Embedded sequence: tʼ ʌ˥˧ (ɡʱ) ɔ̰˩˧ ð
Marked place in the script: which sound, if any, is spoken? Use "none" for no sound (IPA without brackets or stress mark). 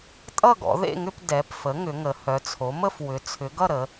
ɡ